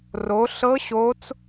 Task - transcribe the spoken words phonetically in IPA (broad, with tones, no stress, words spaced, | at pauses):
ro˨˦ɬɤ˦˥ ɕo˦˥t͡s